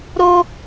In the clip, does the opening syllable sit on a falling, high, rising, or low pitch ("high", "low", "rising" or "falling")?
high